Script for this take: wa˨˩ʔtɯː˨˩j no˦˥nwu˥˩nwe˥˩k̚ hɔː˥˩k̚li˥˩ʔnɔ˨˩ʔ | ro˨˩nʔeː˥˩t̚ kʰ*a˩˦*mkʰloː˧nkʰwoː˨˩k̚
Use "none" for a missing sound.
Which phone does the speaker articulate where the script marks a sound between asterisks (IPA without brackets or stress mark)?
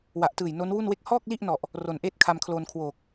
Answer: a˧